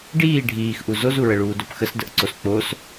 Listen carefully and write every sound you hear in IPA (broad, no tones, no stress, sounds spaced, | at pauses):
ɖ iː ɖʱ iː x ʔ u z o z u ɹ ə ɭ uː d o p x ə s d ə ʔ ǀ o s k͡p o s